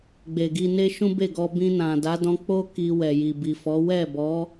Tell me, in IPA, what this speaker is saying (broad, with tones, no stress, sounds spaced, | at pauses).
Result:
ɡ͡b e˨ ɡ i˧ n e˦ ʃ ũ˦ b e˦˨ ɡ ɔ˧ b ĩ˧ n ã˨ d a˨˦ d ɔ̃˧ k͡p o˦ k i˧ w ɛ˨ j i˨ b i˨ f ɔ˨˦ w ɛ˦˨ b ɔ˨˦